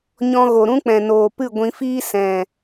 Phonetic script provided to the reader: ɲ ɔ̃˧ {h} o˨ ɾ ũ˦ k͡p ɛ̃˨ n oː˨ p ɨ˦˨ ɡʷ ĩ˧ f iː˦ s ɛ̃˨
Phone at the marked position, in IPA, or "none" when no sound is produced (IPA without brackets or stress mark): ɣ